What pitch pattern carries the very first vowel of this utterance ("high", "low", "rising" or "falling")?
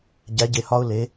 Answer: rising